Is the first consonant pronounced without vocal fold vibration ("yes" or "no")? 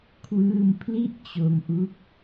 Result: yes